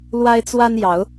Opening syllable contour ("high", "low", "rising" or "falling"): high